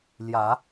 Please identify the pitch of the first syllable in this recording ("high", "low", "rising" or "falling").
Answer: rising